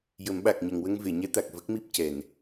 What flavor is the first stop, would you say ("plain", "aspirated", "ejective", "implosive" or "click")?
implosive